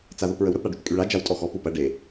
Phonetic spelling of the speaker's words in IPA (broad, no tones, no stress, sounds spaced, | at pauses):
t͡s a ð o p ɹ ə w ɾ ə p ɽ a ɖ y t kʼ y ɭ a d͡ʒ a w tʼ ɔ x ɔ p u p ɐ ɖ e